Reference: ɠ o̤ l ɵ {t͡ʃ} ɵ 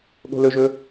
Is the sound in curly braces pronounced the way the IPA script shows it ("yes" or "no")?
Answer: no